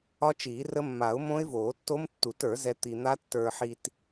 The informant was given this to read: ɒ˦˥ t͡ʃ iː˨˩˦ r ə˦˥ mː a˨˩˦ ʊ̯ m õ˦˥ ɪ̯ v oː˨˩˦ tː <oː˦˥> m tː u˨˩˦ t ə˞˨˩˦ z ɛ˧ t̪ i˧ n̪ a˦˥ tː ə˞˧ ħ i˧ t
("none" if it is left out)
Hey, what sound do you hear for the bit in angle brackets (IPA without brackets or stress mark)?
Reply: o˦˥